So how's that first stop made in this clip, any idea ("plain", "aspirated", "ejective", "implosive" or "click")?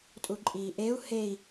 ejective